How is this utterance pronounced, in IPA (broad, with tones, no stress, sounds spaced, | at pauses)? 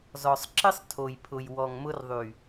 z ɔ˨ sˤ ǁ ɪ˦ sˤ tʰ o˨ j pʰ ʊ˨ j w ɔ˨ ŋ m ʊ˧ r ðˤ y˨